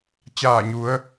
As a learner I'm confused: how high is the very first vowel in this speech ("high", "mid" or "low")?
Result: low